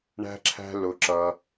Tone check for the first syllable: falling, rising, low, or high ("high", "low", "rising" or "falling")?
high